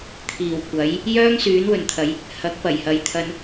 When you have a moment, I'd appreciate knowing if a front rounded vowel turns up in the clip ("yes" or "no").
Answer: yes